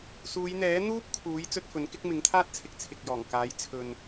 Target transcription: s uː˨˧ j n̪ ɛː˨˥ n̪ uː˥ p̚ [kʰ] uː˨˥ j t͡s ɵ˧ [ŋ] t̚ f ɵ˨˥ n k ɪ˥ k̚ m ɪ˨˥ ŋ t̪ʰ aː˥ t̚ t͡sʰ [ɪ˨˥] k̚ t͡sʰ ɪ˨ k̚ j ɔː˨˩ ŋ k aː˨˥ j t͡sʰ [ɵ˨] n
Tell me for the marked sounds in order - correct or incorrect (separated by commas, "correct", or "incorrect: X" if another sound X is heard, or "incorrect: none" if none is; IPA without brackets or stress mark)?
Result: correct, incorrect: none, correct, correct